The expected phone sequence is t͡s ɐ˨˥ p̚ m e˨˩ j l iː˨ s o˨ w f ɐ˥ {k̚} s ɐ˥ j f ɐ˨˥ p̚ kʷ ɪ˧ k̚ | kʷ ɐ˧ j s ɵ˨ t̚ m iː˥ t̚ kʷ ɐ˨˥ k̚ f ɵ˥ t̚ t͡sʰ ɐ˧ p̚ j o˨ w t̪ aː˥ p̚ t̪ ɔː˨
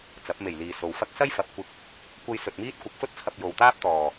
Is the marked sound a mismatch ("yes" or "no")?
no